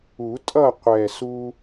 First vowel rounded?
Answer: yes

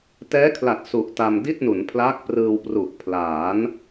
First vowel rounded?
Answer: no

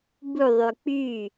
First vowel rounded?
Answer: yes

